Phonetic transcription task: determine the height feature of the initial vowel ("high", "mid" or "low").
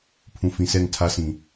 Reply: high